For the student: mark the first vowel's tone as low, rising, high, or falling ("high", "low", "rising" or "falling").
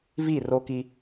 falling